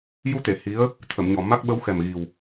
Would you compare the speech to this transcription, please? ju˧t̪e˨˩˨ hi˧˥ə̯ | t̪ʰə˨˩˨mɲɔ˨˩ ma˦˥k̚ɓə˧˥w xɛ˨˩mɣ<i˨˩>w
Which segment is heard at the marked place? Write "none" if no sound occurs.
i˨˩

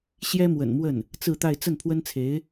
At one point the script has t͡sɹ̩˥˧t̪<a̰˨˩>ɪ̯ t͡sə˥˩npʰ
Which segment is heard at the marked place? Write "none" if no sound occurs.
a˥˧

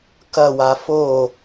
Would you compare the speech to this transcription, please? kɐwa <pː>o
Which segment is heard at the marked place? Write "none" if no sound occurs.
f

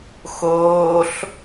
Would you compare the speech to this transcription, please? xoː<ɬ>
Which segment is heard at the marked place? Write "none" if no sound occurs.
ɬ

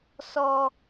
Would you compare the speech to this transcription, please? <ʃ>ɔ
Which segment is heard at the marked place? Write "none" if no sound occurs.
s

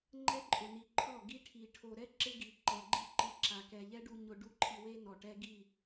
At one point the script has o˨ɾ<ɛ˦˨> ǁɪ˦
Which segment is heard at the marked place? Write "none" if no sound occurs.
ɛ˦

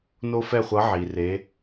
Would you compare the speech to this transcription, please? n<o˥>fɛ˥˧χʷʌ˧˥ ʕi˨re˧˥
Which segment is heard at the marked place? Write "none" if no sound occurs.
o˥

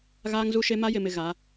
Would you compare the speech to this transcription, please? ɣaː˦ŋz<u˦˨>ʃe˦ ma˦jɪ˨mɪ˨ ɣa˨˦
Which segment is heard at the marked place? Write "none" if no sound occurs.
u˦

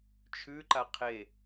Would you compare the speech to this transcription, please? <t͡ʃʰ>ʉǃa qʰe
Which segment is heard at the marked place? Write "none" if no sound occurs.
t͡ʃʰ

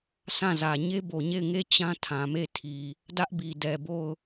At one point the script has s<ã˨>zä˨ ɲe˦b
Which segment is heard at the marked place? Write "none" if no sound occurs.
ã˦˨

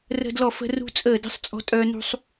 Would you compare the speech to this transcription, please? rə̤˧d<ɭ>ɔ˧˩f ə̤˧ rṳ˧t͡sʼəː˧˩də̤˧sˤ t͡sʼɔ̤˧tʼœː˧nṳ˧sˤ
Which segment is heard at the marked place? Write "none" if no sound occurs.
l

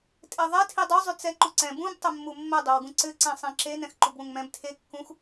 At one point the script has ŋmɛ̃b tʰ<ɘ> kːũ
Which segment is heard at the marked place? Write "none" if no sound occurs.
e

